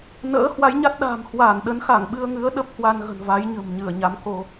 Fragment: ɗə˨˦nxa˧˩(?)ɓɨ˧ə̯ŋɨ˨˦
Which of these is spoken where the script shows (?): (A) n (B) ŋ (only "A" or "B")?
B